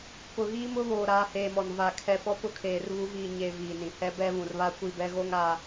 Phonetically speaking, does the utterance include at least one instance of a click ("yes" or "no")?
no